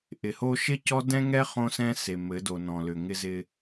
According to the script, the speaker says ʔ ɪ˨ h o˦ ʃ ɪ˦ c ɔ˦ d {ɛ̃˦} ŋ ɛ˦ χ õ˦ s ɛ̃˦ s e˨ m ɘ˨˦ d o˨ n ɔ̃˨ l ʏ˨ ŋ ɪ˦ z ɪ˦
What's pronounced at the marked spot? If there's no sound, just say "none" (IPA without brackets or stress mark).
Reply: ɛ̃˦